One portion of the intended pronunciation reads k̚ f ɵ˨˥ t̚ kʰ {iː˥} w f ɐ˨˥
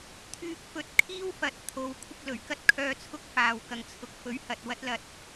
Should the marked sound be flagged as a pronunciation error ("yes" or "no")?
no